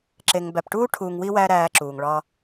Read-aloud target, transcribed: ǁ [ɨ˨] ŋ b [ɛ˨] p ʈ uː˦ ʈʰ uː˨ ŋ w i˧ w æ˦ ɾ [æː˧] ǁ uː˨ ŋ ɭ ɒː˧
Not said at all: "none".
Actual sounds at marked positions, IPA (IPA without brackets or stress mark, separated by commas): e˨, æ˨, æː˧